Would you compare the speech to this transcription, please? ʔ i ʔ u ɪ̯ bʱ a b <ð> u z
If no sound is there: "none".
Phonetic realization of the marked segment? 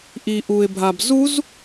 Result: z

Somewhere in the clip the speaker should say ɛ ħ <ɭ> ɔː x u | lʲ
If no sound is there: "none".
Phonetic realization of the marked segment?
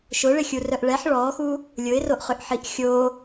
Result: ɭ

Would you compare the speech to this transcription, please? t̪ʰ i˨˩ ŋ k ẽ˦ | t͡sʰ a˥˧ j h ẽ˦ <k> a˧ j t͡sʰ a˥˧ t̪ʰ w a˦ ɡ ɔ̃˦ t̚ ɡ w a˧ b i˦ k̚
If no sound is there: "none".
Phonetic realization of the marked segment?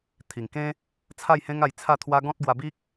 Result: ŋ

